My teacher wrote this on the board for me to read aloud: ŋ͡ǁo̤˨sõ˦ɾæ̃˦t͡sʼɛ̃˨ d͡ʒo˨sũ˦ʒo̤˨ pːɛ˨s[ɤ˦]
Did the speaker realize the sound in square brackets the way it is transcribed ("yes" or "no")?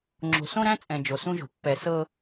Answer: yes